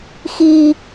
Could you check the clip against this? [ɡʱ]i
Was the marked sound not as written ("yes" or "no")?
yes